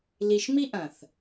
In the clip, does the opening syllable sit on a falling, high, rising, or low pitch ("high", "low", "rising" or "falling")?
low